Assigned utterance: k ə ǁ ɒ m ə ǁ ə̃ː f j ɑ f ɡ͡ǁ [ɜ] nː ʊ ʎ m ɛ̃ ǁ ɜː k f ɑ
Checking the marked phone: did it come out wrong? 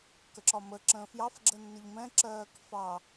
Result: no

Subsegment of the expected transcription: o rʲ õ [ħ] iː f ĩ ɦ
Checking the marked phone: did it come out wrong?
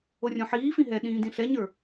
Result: no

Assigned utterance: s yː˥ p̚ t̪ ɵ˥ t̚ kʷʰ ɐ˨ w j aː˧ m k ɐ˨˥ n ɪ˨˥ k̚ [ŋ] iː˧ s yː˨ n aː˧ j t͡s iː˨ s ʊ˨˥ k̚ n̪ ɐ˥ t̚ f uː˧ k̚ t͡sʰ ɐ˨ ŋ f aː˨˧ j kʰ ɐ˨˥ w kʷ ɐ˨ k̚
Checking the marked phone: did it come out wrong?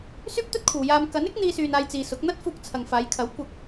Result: yes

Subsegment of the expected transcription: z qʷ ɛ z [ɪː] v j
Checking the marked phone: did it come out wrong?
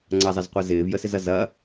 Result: no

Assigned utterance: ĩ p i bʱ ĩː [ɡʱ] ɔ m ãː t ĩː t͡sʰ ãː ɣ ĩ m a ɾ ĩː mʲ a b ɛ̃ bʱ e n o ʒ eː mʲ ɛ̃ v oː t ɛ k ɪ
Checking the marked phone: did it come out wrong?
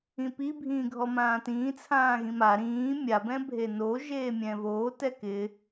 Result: no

